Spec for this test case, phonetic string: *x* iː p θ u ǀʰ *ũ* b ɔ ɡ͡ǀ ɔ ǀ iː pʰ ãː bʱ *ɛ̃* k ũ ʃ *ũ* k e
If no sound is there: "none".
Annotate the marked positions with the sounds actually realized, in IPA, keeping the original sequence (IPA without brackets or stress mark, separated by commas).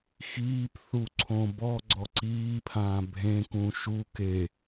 x, õ, ẽ, u